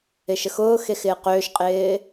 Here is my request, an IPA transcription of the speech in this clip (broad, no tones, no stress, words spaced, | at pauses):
ɪʃəxʊː xexɪːqøːʃqʼɪː